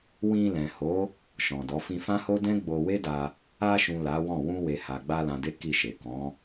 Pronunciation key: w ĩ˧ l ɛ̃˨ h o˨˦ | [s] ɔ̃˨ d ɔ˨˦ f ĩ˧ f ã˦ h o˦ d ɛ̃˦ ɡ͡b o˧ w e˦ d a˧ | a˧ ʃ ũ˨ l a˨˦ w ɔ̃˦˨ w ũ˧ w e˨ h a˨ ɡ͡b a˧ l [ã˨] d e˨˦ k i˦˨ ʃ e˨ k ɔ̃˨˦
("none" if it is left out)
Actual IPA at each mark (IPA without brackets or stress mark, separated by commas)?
ʃ, ã˨